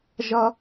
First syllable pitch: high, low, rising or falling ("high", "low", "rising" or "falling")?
high